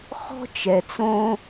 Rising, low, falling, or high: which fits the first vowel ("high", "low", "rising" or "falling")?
high